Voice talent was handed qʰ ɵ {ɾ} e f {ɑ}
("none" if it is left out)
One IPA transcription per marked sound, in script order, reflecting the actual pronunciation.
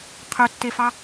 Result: tː, ɑ

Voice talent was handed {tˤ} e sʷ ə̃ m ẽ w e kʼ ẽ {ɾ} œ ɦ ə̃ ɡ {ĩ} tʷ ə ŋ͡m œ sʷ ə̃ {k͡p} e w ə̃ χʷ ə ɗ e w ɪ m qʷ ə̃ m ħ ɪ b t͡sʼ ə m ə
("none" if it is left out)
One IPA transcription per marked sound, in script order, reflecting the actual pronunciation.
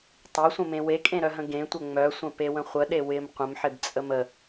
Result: tˤ, ɾ, ẽ, p

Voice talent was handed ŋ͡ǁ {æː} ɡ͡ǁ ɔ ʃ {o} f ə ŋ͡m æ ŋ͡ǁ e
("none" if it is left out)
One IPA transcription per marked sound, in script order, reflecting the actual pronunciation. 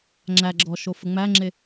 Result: æ, o

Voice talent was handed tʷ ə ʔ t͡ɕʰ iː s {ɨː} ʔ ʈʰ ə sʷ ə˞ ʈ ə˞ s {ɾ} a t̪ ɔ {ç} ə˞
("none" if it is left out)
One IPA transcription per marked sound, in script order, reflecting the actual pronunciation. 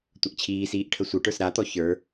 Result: iː, ɾ, ç

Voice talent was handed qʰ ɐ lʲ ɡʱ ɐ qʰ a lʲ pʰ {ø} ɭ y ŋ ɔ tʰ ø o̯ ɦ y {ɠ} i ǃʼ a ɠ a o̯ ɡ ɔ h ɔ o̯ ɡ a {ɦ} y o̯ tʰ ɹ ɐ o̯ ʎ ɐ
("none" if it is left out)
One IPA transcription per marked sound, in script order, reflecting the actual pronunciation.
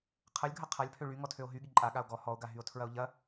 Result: ø, ɠ, ɦ

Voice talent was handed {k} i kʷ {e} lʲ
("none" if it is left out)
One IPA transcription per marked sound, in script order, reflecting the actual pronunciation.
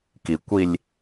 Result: k, i

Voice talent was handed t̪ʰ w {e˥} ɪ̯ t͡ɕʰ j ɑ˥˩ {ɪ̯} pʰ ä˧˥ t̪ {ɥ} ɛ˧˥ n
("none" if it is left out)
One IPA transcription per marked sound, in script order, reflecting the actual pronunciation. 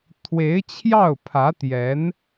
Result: e˧˥, ʊ̯, j

